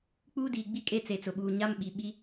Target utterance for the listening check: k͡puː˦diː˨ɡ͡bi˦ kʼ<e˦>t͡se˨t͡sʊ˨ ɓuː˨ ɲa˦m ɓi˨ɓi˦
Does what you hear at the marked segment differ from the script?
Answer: no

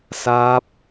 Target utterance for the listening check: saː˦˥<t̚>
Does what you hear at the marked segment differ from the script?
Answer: yes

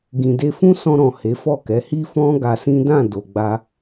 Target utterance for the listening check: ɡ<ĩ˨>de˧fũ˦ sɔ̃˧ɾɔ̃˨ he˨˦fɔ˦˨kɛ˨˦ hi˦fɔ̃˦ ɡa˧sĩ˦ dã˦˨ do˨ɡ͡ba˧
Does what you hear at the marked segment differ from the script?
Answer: no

